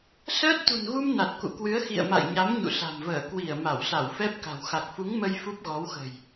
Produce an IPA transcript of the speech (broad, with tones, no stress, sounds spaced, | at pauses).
s əː˦˥ t̚ t̪ ṳ˨˩ n ɣ u˧ m n a˨˩ t̚ k ṵ˧˨ k w ɨ˨˦ ə̯ x ḭ˧˨ ə̯ m a̰˧˨ j ɲ a˨˦ m ɲ ṵ˧˨ s a̤˨˩ m v əː˧˩ k w i˧˩ ə̯ m a˧˩ w s a˧˩ w f ɛ˦˥ p̚ k a̤˨˩ w x a˨˩ k̚ f u˨˦ ŋ m ə˧ j f u˦˥ p̚ ɣ ɔ˨˦ w x ə̤˨˩ j